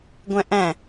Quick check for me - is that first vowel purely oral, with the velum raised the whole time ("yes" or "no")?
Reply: no